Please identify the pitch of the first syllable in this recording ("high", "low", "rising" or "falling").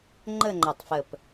falling